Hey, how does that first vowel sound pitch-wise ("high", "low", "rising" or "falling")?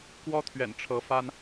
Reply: high